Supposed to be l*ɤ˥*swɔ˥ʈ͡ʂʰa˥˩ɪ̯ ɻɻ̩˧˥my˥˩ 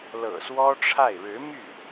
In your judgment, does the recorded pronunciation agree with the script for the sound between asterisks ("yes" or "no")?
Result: no